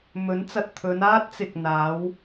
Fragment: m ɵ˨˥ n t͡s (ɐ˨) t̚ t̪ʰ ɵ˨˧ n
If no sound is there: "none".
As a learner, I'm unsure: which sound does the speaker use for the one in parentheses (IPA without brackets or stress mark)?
ɐ˨